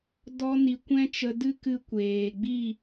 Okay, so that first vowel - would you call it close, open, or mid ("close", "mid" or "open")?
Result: mid